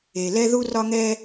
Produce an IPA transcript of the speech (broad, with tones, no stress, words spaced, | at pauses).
e˨ lɛ˦ðu˦rɒ˦ŋɛ˦